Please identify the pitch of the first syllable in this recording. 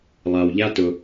low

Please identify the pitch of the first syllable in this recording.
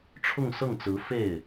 falling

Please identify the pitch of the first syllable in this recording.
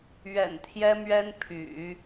low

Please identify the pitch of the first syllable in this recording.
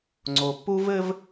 low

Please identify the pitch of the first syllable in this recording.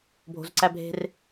low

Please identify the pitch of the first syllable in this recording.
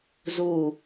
falling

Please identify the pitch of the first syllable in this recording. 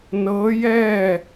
rising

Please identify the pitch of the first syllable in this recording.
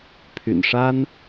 low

